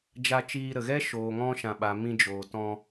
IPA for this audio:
d͡ʒ a˧ t͡ʃ iː˧ ɾ ə˨ ɣ ɛ˦ ʃ oː˨ ŋ ɔ̃˧ ʃ ã˨ ɓ a˨ m ĩ˧ d͡ʒ oː˨ t ɔ̃˧

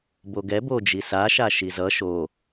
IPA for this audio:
b o ɡ ɛ b o d͡ʒ i s a ʃ a ʃ i z ʌ ʃ o

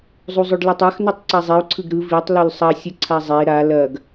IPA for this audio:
zˤ u zˤ o ɖ l ɯ tˤ a x n u tˤ ǀ a zˤ i u̯ ǀʰ ɯ ɡ ɾ ɯ v i tˤ l u l sˤ ɐ sʲ ə ǀʰ a zˤ e ɾ a l ɐ ɡ

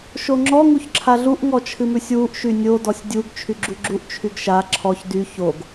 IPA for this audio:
ʃ o ŋ͡ǁ ɔ ŋ u ç ǁʰ a ɮ u ʔ ŋ ɔ t͡ʃʰ ɨ m ʉ sʲ w u ʔ ʃ y nʲ o d ɔ sʲ dʲ u ɡ t͡ʃʰ y ɡ͡ǁ u ɡ͡ǁ u ʔ t͡ʃʰ y ɡ ʃ a ǁʰ ɔ ç d y ç o ɡ

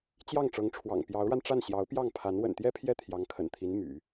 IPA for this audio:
t͡ɕ j ɑ˥˩ ŋ ʈ͡ʂ ɤ˧˥ ŋ ʈ͡ʂʰ w ɑ̰˨˩ ŋ p j ɑ˧˥ ʊ̯ ɻ a˧ n ʈ͡ʂ a˥˩ n ɕ j ɑ˧˥ ʊ̯ p j ɑ˥˩ ŋ pʰ a˧˥ n w ə̰˨˩ n t̪ j ɛ˥ pʰ j ɛ˥˩ t̪ʰ j ɑ˧˥ ŋ kʰ ə̰˨˩ n t̪ʰ i˧˥ n m y̰˨˩˦

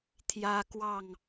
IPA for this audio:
t̪ʰ j ä˦ k w ɑ˥˨ ŋ

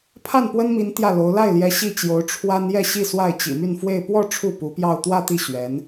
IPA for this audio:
pʰ a˥˩ n p w ə˥ n m i˧˥ n t̪ j ä˥˩ l o˧˥ ʊ̯ l a˥˩ ɪ̯ l j ɛ˧˥ ɕ i˥˩ t͡ɕ j o˧˥ ʊ̯ ʈ͡ʂʰ w a˥ n j ɛ˥˧ ɕ i˥˧ s w a˥˩ ɪ̯ t͡ɕ ḭ˨˩ m y˥˧ n f w e˥˧ ɪ̯ p w ɔ˥˧ ʈ͡ʂʰ u˥˩ p u˧˥ p j ɑ˥˧ ʊ̯ t̪ w ä˥˧ t̪ i˥˩ ɕ ɥ ɛ˧˥ n

